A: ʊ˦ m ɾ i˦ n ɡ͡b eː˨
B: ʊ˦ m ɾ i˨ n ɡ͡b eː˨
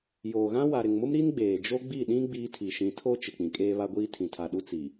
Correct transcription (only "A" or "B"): A